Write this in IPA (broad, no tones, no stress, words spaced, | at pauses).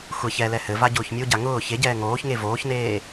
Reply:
xʷɛç ɛlɛ hɘva ɟʊːçmʲoɟa ŋʊː çeɟɛː ŋoːçŋe voːçneː